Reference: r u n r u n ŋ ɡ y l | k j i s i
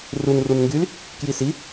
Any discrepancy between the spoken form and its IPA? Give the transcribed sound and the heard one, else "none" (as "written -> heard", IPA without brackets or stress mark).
none